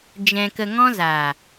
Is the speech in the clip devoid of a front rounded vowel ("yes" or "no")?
yes